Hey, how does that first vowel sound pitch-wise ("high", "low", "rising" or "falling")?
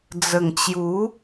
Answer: low